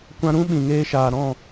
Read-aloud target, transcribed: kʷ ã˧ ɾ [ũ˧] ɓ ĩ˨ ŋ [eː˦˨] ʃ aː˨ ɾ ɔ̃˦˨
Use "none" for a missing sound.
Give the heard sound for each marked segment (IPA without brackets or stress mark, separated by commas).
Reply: ũ˦, eː˦